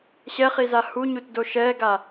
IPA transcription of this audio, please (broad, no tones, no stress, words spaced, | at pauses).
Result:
ɕɛχiza huɲutdo ʃɛɡa